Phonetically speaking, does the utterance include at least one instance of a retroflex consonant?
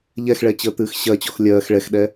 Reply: yes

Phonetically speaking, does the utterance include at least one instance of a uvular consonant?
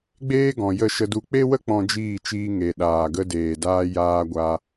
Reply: no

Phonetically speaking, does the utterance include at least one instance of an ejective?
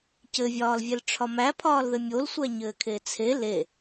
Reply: no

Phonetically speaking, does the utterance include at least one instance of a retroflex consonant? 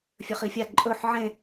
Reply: no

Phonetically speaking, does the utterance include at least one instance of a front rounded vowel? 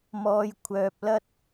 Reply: yes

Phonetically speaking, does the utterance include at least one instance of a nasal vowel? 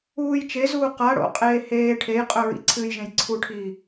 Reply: yes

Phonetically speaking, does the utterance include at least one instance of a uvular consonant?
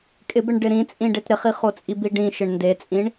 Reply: yes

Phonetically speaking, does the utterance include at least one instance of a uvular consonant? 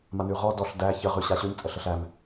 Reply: yes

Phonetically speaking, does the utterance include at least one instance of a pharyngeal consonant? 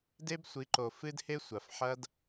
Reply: yes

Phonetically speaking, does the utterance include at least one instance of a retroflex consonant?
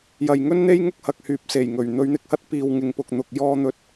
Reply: no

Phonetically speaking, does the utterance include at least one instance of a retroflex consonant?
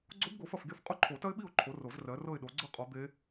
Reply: no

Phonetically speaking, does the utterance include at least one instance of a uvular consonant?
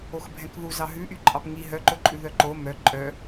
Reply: no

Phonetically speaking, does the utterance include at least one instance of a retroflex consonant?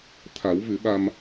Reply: no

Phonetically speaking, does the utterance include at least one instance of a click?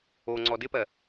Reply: yes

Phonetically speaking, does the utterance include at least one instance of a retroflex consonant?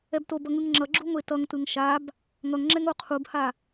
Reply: no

